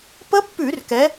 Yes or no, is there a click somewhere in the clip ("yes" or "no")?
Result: no